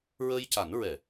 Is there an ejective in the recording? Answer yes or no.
no